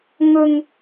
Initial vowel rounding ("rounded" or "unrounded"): rounded